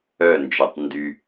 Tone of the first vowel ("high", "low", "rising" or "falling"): falling